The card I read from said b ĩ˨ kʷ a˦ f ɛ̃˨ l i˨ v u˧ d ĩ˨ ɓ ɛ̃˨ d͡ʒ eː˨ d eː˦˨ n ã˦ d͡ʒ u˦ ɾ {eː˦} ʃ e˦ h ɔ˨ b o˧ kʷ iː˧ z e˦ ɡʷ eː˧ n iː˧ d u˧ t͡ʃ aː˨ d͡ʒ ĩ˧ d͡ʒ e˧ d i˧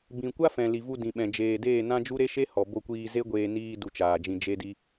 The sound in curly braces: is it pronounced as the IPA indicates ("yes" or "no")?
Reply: no